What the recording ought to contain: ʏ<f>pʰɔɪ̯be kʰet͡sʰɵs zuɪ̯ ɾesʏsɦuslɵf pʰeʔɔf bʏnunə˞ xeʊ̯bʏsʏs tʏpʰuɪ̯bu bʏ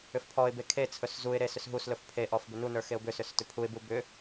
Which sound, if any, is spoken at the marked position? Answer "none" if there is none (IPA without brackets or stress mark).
f